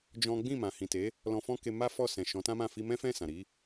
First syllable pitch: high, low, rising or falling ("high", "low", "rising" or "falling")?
high